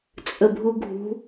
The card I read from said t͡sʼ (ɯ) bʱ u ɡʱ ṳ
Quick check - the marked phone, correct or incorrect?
incorrect